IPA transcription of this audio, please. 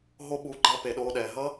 ɦ o˧ ɓ u˨˦ ɡ͡ǃ a˧ p e˨ ɗ oː˧ ɗ ɛː˨ ɦ ʌ˦

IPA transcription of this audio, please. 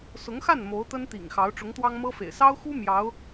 s ʊ˧˥ ŋ x a˥˩ n m o˧˥ ʊ̯ t̪ ə˥ n t̪ ḭ˨˩ ŋ x ɑ˧˥ ʊ̯ ʈ͡ʂ ʊ˧˥ ŋ t̪ w ɑ˥ ŋ m ɤ˥ f ḛ˨˩ ɪ̯ s ɑ˥ ʊ̯ x u˥ m j ɑ˧˥ ʊ̯

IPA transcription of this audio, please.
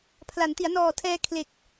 pʰ l a˩˦ n t i˩˦ a̯ n ɔː˨˩ tʰ ɛː˧ kʰ l e˨˩ k̚

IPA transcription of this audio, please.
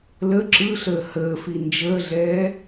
l ə ǁ ɯ ɬ əː h əː f i n d͡ʒ əː ɮ ɛː

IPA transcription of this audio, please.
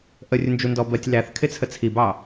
ʔ ə rʲ ʊ n d͡ʒ u n d ɔ b ɜ tʲ l æ θ kʰ ɪ t͡sʰ ə t͡sʰ i b ɑ

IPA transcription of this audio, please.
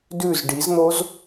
d ʉ z ɖ i z n̪ o z

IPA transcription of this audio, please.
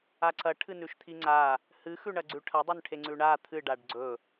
a ǀ ɐ ʈʰ ɨ n ʉ ʃ t̪ʰ i ŋ͡ǀ a | h ɨ x ʉ ɳ ɐ ɡ͡ǀ ʉ ʈʰ ɐ dˤ ʉ n ʈʰ e ŋ͡ǀ ʉ ɳ a t̪ʰ ɨ ɖ a ɖ ɡ͡ǀ ɵ

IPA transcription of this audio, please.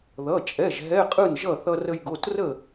ð ʌ˩˧˩ t͡ʃʼ ɛ˩˧˩ ʒ ɦ ɛ˧˥˧ qʼ ɯ˥˩ n ʒ ʌ˥˩ θ ʌ˧ r ə˧ j ɡ o˩˧˩ t r ə˥˩

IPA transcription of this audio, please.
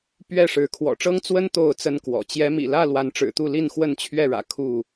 p ɥ ɛ˥˨ ʂ ɻ̩˨˦ kʰ w ɔ̰˨˩ ʈ͡ʂ ɤ˦ ŋ t͡s w ə˦ n t̪ o˥˨ ʊ̯ t͡s ə˦ n k w ɔ̰˨˩ t͡ɕ j ɛ˨˦ m ḭ˨˩ l ä˥˨ l w a˨˦ n ʈ͡ʂ ɻ̩˨˩ t̪ u˥˨ l i˥˨ n x w ə˥˨ n t͡ɕʰ ɥ ɛ˥˨ ɻ ä̰˨˩ kʰ u˥˨

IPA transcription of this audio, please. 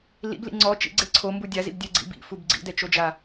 l ḭ b l ḭ ŋ͡ǀ ɔ t͡ʃ ḭ ɡ͡ǀ e ǀʰ o m b u dʲ a z ḭ b dʲ ɛ ɡ͡ǀ ḭ b ḭ f u b ɡ͡ǀ ḭ d ɛ t͡ʃ o d͡ʒ a

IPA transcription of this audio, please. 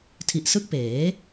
tʰ i˨˩ ʔ s ɯ˦˥ k̚ p eː˩˦

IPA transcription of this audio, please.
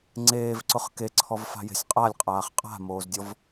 ŋ͡ǀ eː v ǀ ʊ χ k e ǀʰ ɔ v f a̤ j e̤ sʲ qʼ a lʲ qʼ aː χ qʼ a̤ m oː z dʲ ɔ v

